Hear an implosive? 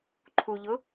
no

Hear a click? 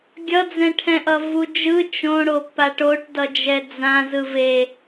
no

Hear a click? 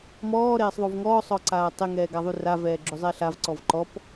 yes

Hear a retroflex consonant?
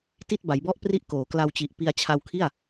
no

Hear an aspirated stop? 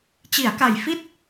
no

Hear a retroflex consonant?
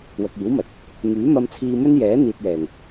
no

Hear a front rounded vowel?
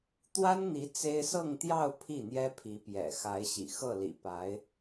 no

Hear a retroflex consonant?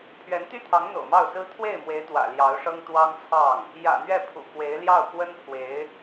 yes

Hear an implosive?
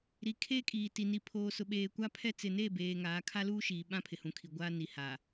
yes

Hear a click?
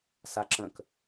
yes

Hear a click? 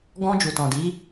no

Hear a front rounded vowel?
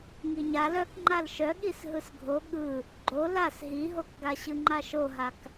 yes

